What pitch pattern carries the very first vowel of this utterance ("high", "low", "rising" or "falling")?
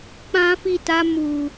high